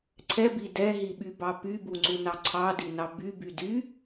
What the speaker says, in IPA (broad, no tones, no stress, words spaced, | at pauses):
ǀʰɛbi dɛɦiɓybɑ pybuŋ͡ǀunɑ ǀʰɑdinɑ byby dy